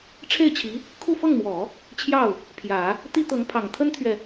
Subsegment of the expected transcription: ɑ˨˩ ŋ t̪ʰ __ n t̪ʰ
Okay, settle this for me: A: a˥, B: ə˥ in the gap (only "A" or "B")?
B